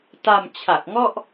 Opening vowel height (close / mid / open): open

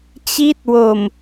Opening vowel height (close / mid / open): close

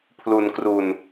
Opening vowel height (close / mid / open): close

